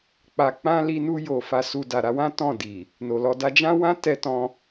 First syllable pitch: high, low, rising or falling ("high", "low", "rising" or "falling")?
low